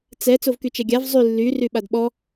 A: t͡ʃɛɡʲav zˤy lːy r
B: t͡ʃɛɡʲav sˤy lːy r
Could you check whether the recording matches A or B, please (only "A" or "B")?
A